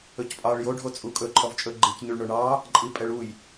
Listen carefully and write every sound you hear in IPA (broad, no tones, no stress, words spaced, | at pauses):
ɵcpʼɑɭ jo ɖʱot͡sʼukʼɵ ǃʰɔvt͡ʃʼɵɡ͡ǃic ɲyɭɳoɳɑ | ǃʼipʼɛɭuj